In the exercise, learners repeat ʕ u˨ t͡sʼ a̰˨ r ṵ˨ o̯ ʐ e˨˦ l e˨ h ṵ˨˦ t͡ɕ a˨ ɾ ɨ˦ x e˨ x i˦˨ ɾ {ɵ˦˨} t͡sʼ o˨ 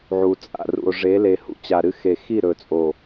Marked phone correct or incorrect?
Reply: incorrect